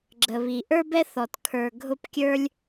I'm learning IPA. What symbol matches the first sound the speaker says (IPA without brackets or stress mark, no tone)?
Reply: ɡ͡ǁ